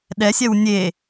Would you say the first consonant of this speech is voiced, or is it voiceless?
voiced